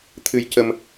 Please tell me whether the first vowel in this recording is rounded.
no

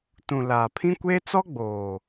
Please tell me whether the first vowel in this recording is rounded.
yes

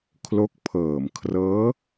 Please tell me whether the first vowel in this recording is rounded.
yes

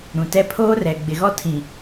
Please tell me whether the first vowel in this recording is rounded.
yes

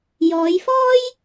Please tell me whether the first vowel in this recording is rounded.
yes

